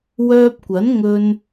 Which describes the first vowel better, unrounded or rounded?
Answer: rounded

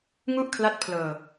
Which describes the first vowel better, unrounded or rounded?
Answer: rounded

